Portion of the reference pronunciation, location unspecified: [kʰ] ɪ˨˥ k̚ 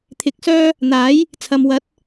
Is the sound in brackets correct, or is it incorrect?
incorrect